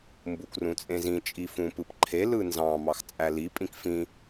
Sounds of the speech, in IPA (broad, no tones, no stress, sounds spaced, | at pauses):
m b u k r ũ t͡sʼ ẽ z ĩ t͡ʃʼ i f ũ p ɯ p ǃʰ e l ɯ n z ɑ̃ m ɑ x t͡sʼ æ l i pʼ ĩ k f ĩ